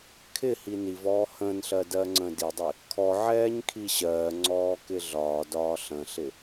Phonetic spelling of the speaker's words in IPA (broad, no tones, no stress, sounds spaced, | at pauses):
kʰ ɪ h i n i v ɔː h ə̃ː n ɬ ɜ d ɜː ŋ͡ǀ ə̃ː d i dˤ i | kʰ ɔ ʕ ɛː ɲ kʰ i ɕ ɜː ŋ͡ǀ ɔː k ɪ ɮ ɒː d ɒː ɬ ə̃ ɬ ɪ